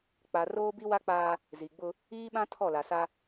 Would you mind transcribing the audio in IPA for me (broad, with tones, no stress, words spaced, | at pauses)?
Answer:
k͡pa˨ roː˦bi˦wa˦k͡paː˦ | zi˨ɡ͡bʊ˦ | iː˦ɓã˦ tʰɔ˦˨la˨sa˦